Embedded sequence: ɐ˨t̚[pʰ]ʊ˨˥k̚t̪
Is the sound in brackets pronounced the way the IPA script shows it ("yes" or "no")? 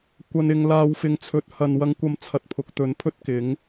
yes